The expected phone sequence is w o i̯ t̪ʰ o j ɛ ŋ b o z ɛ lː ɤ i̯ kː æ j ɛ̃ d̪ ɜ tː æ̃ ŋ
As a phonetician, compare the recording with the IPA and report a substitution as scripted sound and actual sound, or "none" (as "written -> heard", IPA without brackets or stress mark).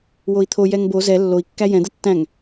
ɤ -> o